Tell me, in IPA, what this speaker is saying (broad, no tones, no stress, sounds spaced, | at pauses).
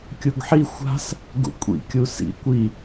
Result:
kʲ u ɡ ħ i xʷ a̤ s | ɡ ṵ kʷʼ ḭ kʲ u s ḭ kʷ i